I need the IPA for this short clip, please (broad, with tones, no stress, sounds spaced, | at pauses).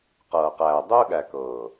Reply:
q ɤː˨ q æː˨ dˤ ɵː˦ ɠ æ˨ k ɤː˨